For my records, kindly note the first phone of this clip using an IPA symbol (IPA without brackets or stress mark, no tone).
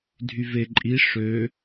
dʱ